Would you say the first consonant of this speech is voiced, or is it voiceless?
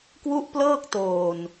voiceless